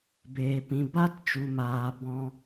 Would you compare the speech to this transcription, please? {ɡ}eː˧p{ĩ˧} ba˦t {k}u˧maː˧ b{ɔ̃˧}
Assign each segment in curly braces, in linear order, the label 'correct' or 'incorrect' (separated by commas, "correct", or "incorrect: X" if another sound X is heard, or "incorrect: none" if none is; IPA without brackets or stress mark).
incorrect: b, correct, incorrect: t͡ʃ, correct